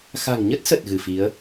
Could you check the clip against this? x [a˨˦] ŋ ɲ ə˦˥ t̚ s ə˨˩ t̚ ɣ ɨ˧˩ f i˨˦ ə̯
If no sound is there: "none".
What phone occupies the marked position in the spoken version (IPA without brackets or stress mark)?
a̤˨˩